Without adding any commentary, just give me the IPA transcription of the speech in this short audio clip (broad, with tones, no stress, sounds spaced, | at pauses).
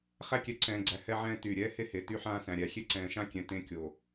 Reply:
χ æ˦ kʲ ɛ˨˦ ǀʰ ɛ̃ː˨ ɡ͡ǀ æ˨ h ɛ˦ ʕ ɛ̃ː˦ t yː˨ ɾʲ ɛː˦ h e˦ h e˨ t y˦ ħ ãː˦ s æ̃˨ ɾʲ æ˨ xʲ e˦ ǀ ɛ̃ː˨ ʃ ã˦ kʲ ɛ̃˨ t ẽ˦ kʲ o˨